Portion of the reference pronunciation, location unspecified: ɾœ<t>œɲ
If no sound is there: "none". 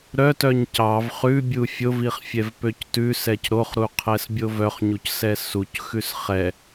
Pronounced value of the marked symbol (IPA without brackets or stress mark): t